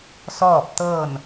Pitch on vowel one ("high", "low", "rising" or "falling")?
falling